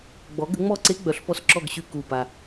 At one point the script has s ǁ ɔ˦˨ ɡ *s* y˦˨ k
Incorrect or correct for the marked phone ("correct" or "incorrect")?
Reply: incorrect